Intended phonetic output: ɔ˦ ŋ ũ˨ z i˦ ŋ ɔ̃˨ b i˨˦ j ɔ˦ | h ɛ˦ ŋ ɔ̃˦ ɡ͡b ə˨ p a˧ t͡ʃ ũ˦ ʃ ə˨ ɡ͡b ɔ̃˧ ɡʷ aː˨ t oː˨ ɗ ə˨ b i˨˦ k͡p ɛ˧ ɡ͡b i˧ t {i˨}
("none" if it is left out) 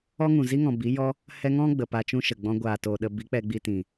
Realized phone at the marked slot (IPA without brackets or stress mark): ĩ˨